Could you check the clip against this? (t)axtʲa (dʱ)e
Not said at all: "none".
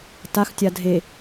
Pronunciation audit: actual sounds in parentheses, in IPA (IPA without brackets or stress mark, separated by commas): t, dʱ